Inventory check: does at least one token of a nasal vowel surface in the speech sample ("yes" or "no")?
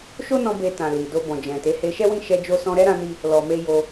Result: yes